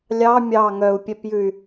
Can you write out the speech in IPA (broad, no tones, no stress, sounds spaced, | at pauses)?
lʲ ɑ mʲ ɑ ŋ œ u̯ pʲ ɛ p j ʉ y̯